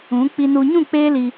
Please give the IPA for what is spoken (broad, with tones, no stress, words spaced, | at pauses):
ũ˨˦ k͡pi˨nu˨ɲũ˦˨ k͡peː˦li˧